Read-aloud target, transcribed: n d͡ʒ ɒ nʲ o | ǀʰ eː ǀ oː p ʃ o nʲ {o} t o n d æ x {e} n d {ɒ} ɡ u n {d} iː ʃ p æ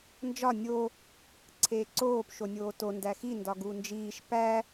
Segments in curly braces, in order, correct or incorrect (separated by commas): incorrect, incorrect, correct, incorrect